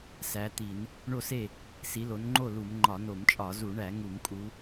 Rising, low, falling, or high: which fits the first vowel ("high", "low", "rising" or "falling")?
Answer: rising